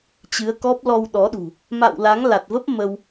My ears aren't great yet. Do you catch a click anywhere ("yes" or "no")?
no